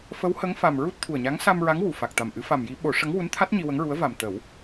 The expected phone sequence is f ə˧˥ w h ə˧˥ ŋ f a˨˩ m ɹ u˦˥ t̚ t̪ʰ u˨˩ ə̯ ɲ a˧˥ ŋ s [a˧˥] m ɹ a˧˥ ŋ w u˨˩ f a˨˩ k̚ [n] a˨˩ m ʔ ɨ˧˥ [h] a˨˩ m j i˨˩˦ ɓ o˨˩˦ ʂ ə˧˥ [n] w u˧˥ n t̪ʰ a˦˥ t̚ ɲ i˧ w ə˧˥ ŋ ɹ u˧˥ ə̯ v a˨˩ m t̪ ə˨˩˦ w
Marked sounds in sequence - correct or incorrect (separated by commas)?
incorrect, incorrect, incorrect, incorrect